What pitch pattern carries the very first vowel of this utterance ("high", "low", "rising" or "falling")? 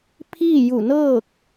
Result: falling